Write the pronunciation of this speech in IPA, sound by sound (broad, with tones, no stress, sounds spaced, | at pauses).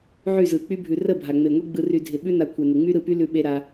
ʕ y˦˨ z ɯ˨ k͡p y˦ bʱ ʉ˨ r ə˦˨ bʱ a˨ ŋ͡m e˨ ŋʷ e˦ ɡ͡b ɯ˧ r y˧ dʱ ɪ˨ ɓ ʉ˦ n a˧ kʷʰ e˨ n ɪ˨ ŋ͡m y˦ ɾ ɯ˧ p y˦ l ʉ˧ ɓ e˧ ɾ a˧